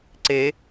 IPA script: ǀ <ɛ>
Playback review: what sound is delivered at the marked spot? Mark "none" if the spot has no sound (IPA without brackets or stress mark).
e